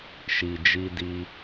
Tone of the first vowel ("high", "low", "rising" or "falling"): low